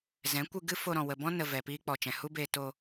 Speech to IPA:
z ɛ̃˨˦ kʷ ɨ˧ ɡ ɨ˦ f o˧ ɾ ɔ̃˨ w ə˨ b ɔ̃˦ n ə˧ v ɛ˨ p iː˦ k͡p ɔ˨ t͡ʃ ɛ̃˨ h u˦ b eː˧ t o˧

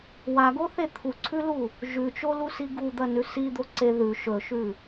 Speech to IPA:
w a ɡ o θ e t̪ʰ u ǀʰ ʉ l u | ʒ ʉ t͡ʃ o l u s i ɡ u d̪ ɐ n ʉ s i d̪ o ǀ e ð ʉ ʃ ɵ ʃ ʉ

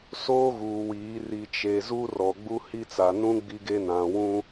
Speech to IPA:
s oː˦ ɣ uː˨ w iː˨˦ r i˨ t͡ʃ e˨ z u˦ r ɔ˨ ɡ͡b u˦ h i˦ t͡s a˨ n ũ˦ ɡ͡b i˦ ɡ e˦ n ã˨ w ũ˦

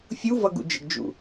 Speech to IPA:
fʲ u v ʌ ɡ ṵ d͡ʒ ə̰ ɡ d͡ʒ ṵ

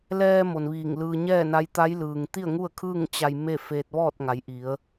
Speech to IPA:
l ɛː˧ m o˩ n ʋ iː˧˩ ŋ l ɯː˧ ɲ ɛː˥˨ n a˧˥ j t̪ a˧˥ j l ɯː˩ ŋ t̪ i˥˨ ə̯ ŋ u˥˨ ə̯ kʰ ɯː˥˨ ŋ t͡ɕ a˧ j m e˥˨ f e˧ t̚ ʋ ɔː˥˨ t̚ ŋ a˩˧ j ʔ i˩˧ ə̯

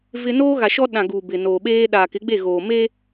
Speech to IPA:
v ɪ˦ n oː˦ ɣ a˨ ʃ ɔ˦ ɗ ã˨ ɡ uː˨ b ɪ˨ n oː˨ ɓ eː˦ ɗ aː˨ k ɪ˨˦ ɡ͡b e˦˨ ɣ oː˨ m e˦

